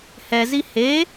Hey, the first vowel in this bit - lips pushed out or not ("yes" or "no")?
no